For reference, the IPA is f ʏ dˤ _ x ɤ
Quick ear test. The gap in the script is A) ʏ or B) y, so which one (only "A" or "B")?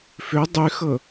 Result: B